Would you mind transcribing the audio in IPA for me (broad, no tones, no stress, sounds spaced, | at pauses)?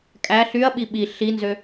kʼ æ ɬ y ɐ̯ ɓ i ɓ i ɬ i n z ø